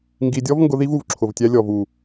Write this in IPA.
ŋɡi˧ dʲɔ˦vŋɡʊ˧ ði˦vu˨v ǁʰʊ˨vtʲæ˧ lʲɔ˨vu˨

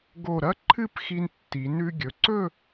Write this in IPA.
ɡo˧˩ɾɐ˥˧ ǃʰɨ˥˧pxi˧n tːi˩˧ nʉ˧ɡʲɵ˩˧ǀɵ˥˧

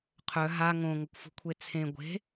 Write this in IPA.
qʰœ ɦa ŋõŋəkʷfṳkʷʰe t͡sʰẽ ɡʷe̤

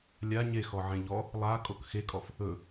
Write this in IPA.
lʲa ɲexɔʕẽ ʎɔ | lˠa kʼokxekʼɔf | ɵ

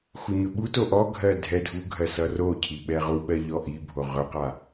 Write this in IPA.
xuɲɵɓuto ʔɔɡʱɜ dʱɛdʱuɡʱɜ sʌrocʰi ɓɛʁuɓɜ ʎɔʔibʱo ʁɵqa

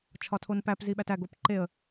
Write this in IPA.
t͡ʃʰɒtʰonpæp ziɓætæ ɡopǃeə̯

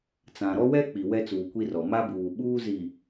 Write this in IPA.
t͡sã˨ɾɔ˦wɛ˦ k͡pi˨wɛ˦t͡suː˨ kʷi˦rɔ˨ ma˦buː˨ ɓuː˦zi˨

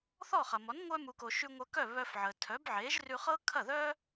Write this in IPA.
θɔ˥˩χɐ˩mɔ˩˥n ŋʷœ˧mu˩ko˩ ʃʉ˧ŋʷœ˧kœ˥˩ βœ˧fʕə˩ tʰœ˩˥bʕe˩˥ʒ rʉ˧χɤ˥ kʰɐ˥˩ðœ˥

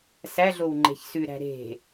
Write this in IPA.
sæɮow ŋ͡ǃe̤çsʉɾæ̤ ɾe̤

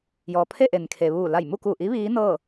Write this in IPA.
jɔː˩pʰe˥˨ ʔe˩nkʰe˩ʋuː˧˩ la˧˩jmu˥˨ku˧˩ʔi˧˥ ʋiː˧˥nɤː˥˨

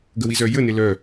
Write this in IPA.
ɡəwizœjə nelœ

